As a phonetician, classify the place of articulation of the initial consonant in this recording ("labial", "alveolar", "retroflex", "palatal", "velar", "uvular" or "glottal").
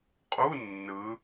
uvular